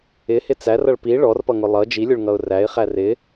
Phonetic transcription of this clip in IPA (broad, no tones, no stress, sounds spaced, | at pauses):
ɪ h ɪ t͡s æ r ʌ ɭ p i ɭ ɔ r p ʌ ŋ ʊ lˠ ʌ d͡ʒ i lʲ ʊ ɭ ŋ ʌ ʊ̯ r æ ɪ̯ χ æ r ɪ